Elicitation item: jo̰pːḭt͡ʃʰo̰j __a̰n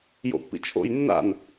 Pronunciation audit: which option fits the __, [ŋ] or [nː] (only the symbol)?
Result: nː